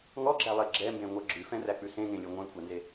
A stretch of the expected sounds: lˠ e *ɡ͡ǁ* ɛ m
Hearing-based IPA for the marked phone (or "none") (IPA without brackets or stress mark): ɡ͡ǁ